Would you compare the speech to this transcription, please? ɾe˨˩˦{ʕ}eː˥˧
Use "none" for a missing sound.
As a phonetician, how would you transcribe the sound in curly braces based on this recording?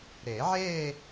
ʕ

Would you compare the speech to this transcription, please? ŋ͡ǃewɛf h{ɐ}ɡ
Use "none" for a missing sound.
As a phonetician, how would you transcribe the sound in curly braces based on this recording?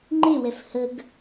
ə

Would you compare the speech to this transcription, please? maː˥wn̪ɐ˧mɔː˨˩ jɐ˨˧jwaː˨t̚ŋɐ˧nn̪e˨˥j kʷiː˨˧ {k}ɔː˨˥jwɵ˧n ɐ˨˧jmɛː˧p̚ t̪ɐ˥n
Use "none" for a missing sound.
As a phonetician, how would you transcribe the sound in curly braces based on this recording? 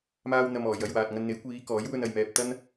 k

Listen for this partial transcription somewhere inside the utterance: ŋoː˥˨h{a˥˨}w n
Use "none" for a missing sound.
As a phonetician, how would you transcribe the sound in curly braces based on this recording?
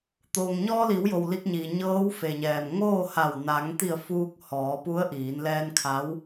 a˧˩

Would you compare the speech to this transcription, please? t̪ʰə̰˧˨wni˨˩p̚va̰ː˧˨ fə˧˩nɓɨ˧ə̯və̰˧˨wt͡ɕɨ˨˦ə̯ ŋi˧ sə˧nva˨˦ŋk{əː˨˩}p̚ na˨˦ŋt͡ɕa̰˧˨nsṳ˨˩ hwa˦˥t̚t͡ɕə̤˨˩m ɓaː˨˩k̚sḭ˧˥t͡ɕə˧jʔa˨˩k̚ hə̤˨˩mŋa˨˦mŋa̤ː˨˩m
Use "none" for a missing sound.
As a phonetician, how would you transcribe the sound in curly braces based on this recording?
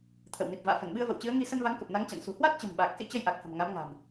ə˨˩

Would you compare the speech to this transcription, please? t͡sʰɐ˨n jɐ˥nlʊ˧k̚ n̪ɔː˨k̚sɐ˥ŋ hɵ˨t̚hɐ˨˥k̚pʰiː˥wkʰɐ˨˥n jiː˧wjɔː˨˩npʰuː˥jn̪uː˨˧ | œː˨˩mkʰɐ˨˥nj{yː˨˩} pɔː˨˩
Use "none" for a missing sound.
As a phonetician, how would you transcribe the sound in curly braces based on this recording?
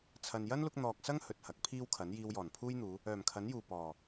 uː˨˩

